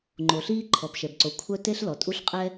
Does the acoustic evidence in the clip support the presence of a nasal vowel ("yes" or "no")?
no